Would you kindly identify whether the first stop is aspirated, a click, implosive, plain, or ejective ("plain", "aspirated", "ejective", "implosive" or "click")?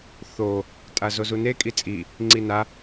ejective